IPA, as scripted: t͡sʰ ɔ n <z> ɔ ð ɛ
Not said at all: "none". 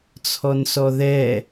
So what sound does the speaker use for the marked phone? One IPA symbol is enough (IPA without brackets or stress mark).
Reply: s